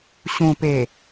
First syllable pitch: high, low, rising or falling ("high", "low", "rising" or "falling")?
low